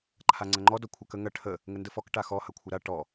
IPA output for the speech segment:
ǃʰaŋ͡ǀɐŋ͡ǃɔ dɔkʷʰɐkə ŋɐ ʈʰə | ŋəndəfɔk ʈaxɔ hɐkʷʰəɾa ʈɔ

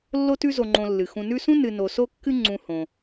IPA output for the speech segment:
lːo˦tʉ˦zo˨ ŋ͡ǃõ˨lːɨ˩ xũ˨nʉ˦sũ˥ nɨ˨no˨so˦kːɨ˦ ŋ͡ǀũ˨hõ˩

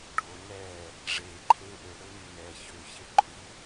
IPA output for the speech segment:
ɖʱo nɛː | ʐeːǃʰeː ʔøɽøny nɛ çøçe ǃʰu

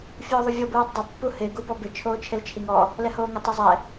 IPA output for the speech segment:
fʲʊːðˤuvʲo buːtˤdˤɪ pːuhɪː ɡubɔbɪ t͡ʃʰoːt͡ʃʰelt͡ʃʰiŋɔ | lɛhoːŋɪ tˤɪzˤɛ

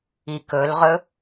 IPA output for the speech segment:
ikɵlʁɵ

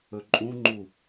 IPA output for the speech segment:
ɵǃʼũŋ͡ǃu

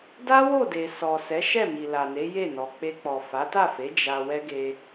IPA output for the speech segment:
da˦wo˦˨de˨ sɔ˨sɛ˨˦ʃɛ˦˨mi˨ la˨ne˨˦ je˦˨nɔ˨ k͡pe˧k͡pɔ˨ fa˨˦ta˦˨fe˨˦ d͡ʒa˧wɛ˦ ɡe˧

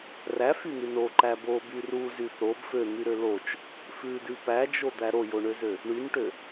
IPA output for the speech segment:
ræfyn̪ʉ noǃæ boby ruzy θob føn̪yɾø lot͡ʃ | fʉdʉ pæd͡ʒod̪æ ɾojoɳøzø | ɳynʈø

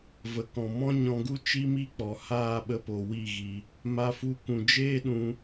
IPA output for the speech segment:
və˨kɔ̃˨ mɔ̃˦ɲɔ̃˧ɡu˦ t͡ʃi˦mi˦k͡pɔ˨ haː˦˨ɓə˧po˨ wi˦˨ɣi˧ | ma˧fu˧ kũ˨d͡ʒeː˦ɗũ˧

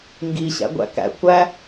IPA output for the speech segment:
ŋɡi ɕæ̰ɡʷæ̰kæ̰ kʷæ

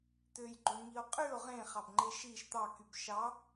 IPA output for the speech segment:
t̪øjɡ͡ǃoɳ ŋio̯qʼyo̯ ʁẽχɑbŋ͡ǃe ʃiʃ t̪ɑkyb ʃɑ

